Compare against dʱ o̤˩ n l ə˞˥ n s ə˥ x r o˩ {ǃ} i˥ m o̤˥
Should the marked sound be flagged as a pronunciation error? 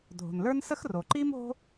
no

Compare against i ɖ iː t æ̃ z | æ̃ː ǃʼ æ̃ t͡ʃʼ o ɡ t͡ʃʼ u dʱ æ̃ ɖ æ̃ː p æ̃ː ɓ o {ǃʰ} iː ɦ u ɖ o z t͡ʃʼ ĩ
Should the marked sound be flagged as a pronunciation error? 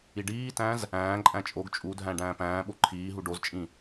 no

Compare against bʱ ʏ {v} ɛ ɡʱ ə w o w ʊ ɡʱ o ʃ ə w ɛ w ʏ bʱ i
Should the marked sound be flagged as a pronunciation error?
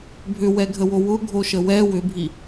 yes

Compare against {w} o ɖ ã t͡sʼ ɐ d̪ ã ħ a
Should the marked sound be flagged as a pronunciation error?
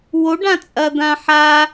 no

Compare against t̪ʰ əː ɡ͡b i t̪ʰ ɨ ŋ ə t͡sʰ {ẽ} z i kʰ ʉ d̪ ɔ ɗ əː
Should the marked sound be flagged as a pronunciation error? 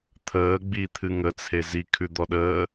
yes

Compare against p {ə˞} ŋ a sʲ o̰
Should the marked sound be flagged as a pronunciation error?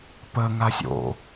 yes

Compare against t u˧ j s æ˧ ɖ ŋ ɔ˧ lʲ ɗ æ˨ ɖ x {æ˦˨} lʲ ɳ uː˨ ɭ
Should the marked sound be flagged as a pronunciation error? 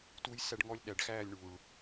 yes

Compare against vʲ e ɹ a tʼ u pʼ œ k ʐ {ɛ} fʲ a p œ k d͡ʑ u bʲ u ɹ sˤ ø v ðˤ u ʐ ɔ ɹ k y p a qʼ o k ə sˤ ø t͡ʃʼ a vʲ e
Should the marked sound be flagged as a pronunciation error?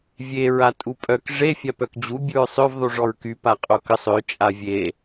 yes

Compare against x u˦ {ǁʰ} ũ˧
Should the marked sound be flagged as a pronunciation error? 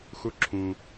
no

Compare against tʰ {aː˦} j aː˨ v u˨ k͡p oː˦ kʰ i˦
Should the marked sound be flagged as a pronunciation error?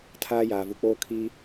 no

